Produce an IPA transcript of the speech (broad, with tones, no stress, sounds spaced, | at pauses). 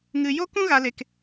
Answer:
ŋ ɨ˧ j o˦ k ũ˦ ɣ a˧ l e˧ k